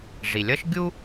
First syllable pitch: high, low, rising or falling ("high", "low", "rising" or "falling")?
low